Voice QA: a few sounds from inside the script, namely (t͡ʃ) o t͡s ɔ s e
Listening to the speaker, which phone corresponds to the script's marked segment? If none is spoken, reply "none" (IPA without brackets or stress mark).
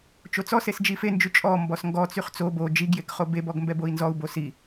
t͡ʃ